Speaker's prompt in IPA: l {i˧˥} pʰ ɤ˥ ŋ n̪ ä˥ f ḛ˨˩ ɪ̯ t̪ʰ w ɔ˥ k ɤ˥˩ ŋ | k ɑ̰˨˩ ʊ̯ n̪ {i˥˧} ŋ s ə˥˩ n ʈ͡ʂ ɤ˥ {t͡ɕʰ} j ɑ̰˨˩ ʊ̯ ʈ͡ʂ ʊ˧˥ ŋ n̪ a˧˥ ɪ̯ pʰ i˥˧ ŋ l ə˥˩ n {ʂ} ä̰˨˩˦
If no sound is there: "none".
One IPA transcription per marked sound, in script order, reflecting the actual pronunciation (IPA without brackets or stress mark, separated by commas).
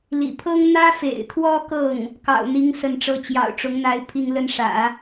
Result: ḭ˨˩, i˧˥, t͡ɕ, ʂ